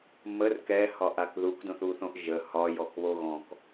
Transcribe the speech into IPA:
m ə r k ɛ h ɒ ʔ a k ð u k d õ θ u θ õ ʔ ʒ ə h ɒ j ɔ k β o ɣ ɔ̃ k

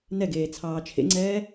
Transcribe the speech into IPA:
n ɛ ɡ eː t͡sʰ ɑː t͡ʃʰ ḛ ŋ͡ǀ ɛː

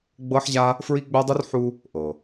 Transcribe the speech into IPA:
ɡ͡b ɤ˦ ħ ʑ a˦ | f ɹ i˦ ɡ͡b œ˦ dˤ u˦ r ħ u˦ | ʔ ɤ˨

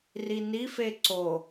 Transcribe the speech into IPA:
r i n i f e ǀ o

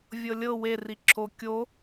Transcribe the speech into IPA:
vʲ ɤ lʲ ɤ w e r i ǁʰ o kʲ o

